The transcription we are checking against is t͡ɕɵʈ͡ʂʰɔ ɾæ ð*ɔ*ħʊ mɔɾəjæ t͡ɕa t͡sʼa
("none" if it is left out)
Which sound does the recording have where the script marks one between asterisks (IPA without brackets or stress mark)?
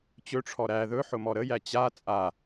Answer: ɵ